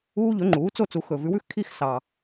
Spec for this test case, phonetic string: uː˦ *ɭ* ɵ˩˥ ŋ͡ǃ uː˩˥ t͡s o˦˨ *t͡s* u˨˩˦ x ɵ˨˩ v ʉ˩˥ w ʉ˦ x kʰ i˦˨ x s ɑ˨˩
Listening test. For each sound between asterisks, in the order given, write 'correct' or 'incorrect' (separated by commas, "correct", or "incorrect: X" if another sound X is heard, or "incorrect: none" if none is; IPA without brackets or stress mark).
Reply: incorrect: ʎ, correct